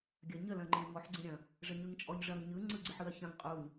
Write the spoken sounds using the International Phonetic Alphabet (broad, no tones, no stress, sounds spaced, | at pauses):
ɡʲ ɐ ɲ ə l ɐ̃ ŋ͡ǃ ẽ l ŋ ɔ ħ ɡ͡ǀ ẽ ɾʲ ɐ̃ | ʐ ə ɲ ɯ ŋ t͡ʃʼ ɔ ɲ ʐ ɐ ŋ ɲ ɯ ŋ͡ǀ ɯ ɡ͡ǀ ɯ ħ ɯ ɐ̯ ç ɐ̃ ŋ qʼ u ɲ